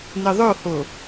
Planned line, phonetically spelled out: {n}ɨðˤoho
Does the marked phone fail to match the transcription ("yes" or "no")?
no